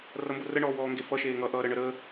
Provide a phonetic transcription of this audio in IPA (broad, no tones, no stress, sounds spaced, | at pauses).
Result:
r ʌ m b ʊ r ə ɳ ɔː w ɔː ŋ ɡ e f ʌ ʃ eː ŋ ʌ ʔ ʌː ɾ ə ɳ ə ɾ əː